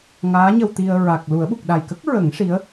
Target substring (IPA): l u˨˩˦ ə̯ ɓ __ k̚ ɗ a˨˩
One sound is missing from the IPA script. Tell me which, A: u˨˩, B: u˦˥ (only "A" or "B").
A